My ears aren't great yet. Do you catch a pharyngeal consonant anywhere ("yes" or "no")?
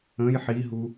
yes